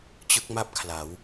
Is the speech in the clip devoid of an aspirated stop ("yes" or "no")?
no